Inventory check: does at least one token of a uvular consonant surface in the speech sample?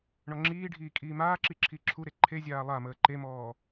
no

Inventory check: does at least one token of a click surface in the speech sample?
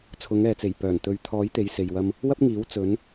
no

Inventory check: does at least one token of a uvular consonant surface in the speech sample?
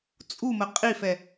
yes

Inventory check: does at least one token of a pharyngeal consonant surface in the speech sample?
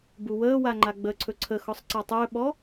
no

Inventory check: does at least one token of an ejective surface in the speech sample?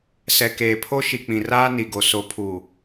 no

